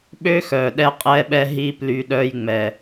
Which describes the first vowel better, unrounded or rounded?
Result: rounded